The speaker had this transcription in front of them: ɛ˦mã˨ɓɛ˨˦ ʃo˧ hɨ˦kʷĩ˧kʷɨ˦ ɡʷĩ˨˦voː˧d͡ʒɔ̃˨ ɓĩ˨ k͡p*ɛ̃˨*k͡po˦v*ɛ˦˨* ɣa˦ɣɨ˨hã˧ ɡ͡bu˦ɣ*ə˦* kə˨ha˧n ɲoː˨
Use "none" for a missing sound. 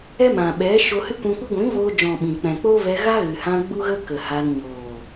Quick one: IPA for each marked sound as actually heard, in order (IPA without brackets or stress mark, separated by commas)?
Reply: ɛ̃˨, ɛ˧, ə˦